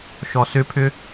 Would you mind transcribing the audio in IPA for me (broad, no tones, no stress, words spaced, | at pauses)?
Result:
ʃɔsʏpʰʏ